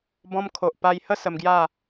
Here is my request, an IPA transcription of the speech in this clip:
b ɔ̃˧ m kʰ o˨ ʔ p a˧ j h ə˥˧ s ə˧ m ɡ j a˥˧

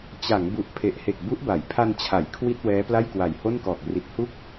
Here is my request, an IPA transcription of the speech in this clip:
t͡ɕ a˩˦ ŋ b u˨˩ ʔ pʰ e˨˩ ʔ h e˨˩ k̚ b u˦˥ ʔ b a˩˦ j pʰ a˧ n t͡ɕʰ a˩˦ j kʰ w i˥˩ t̚ w ɛː˦˥ p l a˥˩ j k w a˨˩ j h o˥˩ n k ɔː˨˩ k̚ r i˨˩ t̚ h u˥˩ k̚

